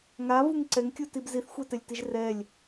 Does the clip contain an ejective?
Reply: no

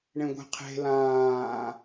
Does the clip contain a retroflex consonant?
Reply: yes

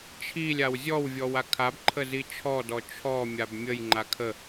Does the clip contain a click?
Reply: yes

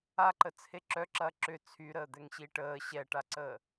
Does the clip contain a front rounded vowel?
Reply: yes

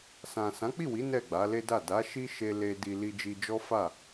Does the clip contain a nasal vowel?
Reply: yes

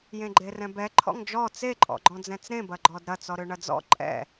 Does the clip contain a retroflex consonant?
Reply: yes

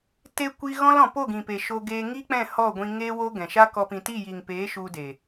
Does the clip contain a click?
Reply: no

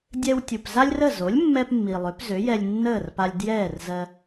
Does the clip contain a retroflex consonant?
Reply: no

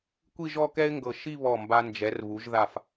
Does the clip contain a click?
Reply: no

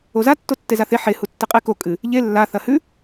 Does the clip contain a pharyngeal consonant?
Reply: yes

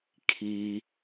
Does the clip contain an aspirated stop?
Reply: yes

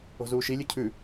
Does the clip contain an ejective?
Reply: no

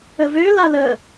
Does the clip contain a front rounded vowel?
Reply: yes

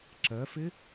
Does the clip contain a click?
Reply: yes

